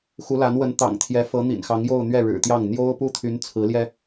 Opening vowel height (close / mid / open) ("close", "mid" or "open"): close